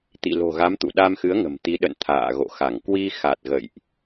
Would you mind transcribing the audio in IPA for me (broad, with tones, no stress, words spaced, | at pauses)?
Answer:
t̪ḭ˧˨ lo̤˨˩ɣa˨˦m t̪ṵ˧˨ ɗa˧m xɨ˨˦ə̯ŋə̤˨˩m t̪i˨˦ ɗə̰˧˨n t̪ʰa̰ː˧˨ɣo̰˧˨xa˧˩ŋ kwi˧xa˨˩t̚ ɣə̰˧˨jʔ